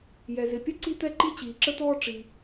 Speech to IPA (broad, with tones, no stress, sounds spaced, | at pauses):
j ɛ˩ z ɪ˩ pʲ ʌ˥ ǀ i˥ t̪ ɛ˥ ǃ i˥ t͡ɕ iː˩ ǁ ə˥ t̪ ɔː˥ ʈ͡ʂ i˩